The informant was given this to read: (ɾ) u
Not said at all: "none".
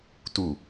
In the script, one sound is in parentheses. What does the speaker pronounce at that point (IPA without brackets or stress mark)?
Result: t